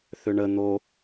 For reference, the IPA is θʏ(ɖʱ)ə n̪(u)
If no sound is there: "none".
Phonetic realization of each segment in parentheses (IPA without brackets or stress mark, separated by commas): ɳ, o